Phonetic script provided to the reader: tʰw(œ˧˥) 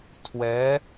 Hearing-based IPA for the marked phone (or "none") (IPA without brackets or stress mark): ɛ˧˥